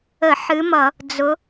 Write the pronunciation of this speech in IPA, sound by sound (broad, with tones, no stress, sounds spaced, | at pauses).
ə˧˩˧ ħ ɨ˨˦ m ʌ˧˩˧ | d͡z ʊ˨˦